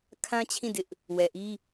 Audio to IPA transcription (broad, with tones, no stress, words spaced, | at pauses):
kʰã˦t͡ɕʰĩ˦˨dɪ˦ʔ | wɛ˨ʔi˦